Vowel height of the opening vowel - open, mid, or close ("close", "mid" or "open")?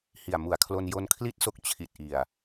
close